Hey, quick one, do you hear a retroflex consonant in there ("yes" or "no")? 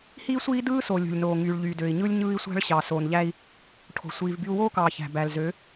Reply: yes